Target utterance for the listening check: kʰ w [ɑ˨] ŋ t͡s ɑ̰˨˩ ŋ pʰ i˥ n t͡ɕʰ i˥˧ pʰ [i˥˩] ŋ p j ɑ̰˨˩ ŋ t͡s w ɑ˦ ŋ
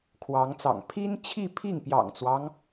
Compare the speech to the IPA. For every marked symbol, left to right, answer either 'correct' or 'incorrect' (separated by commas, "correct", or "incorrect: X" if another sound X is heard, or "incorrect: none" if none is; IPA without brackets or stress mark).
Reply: incorrect: ɑ˧˥, correct